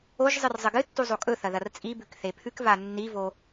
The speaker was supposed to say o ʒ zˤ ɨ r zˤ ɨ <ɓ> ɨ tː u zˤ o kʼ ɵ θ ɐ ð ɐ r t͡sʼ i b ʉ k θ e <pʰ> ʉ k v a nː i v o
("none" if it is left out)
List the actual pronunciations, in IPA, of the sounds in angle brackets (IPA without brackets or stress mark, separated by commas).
ɡ, pʰ